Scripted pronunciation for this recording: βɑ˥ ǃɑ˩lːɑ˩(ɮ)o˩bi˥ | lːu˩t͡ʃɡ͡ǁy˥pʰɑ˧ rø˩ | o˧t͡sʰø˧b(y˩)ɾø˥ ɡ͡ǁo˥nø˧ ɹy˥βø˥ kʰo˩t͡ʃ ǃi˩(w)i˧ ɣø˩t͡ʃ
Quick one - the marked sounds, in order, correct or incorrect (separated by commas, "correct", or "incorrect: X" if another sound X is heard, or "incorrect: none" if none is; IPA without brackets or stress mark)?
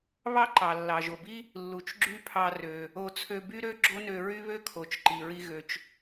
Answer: incorrect: ʒ, incorrect: y˥, incorrect: ɹ